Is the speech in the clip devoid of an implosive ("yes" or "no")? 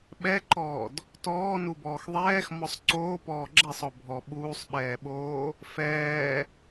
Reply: no